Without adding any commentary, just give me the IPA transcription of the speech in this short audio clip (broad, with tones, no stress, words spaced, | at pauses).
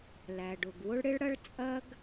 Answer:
læ˩ɖʊ˩ɡwʊ˥ɭɽɪ˥ɭ ɽɐ˥ɭt͡sʼɐ˥ɡ